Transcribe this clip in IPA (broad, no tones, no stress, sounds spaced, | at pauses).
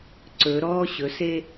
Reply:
ǀ ɵ ɾ ɔ ɕ ɵ s e